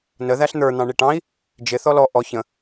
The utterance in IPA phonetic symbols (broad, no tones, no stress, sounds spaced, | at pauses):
n ə ð æ ɬ n̪ ə˞ n̪ ɑ̃ ɳ i ʈ ɑ̃ i̯ | d͡ʒ ɪ θ ɔ l ɔ ʔ ɔ ç ə̃